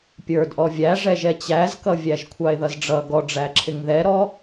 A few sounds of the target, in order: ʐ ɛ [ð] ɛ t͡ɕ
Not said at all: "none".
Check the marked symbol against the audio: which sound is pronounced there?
ʒ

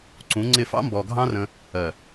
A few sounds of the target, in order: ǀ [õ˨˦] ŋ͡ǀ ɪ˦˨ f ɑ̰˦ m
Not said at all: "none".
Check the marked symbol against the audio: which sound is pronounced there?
ũ˨˦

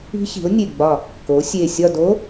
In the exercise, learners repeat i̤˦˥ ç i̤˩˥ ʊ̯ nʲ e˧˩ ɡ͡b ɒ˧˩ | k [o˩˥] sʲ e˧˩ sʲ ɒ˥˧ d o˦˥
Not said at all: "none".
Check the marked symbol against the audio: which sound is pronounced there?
o˩˥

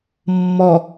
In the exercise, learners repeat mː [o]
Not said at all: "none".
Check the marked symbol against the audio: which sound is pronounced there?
ɔ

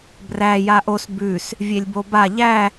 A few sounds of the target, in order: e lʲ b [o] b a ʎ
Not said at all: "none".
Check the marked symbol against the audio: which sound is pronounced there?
o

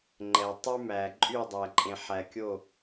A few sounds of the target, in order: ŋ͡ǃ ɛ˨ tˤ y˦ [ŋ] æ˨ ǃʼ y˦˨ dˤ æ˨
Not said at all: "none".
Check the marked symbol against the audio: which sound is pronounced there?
m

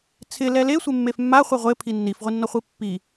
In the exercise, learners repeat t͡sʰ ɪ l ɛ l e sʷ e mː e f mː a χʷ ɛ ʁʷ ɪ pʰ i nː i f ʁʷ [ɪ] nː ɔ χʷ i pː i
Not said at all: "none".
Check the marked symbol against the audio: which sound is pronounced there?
i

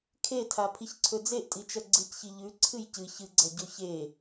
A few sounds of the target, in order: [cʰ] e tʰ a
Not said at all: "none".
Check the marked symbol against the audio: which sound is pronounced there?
kʰ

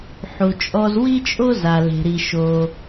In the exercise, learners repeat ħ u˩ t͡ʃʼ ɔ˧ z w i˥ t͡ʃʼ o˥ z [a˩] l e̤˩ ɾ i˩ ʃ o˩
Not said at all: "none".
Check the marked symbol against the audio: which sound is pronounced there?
a˩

